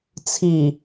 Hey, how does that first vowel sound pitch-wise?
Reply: low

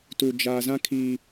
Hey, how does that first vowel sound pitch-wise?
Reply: low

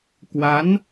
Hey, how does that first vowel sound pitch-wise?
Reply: rising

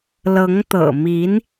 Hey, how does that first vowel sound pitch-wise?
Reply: rising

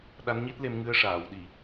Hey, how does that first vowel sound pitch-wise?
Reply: rising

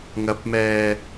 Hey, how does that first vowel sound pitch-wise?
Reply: rising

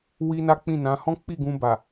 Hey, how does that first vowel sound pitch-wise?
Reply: high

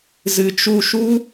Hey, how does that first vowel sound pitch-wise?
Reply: low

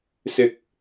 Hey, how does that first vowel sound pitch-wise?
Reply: low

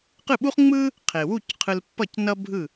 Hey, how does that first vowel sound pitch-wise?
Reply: falling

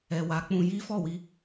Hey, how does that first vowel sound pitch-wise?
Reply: low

